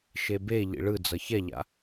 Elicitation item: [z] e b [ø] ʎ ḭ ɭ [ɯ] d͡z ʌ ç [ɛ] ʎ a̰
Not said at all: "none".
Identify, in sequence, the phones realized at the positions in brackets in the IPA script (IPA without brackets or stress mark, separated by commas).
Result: ʃ, e, ɯ, ɛ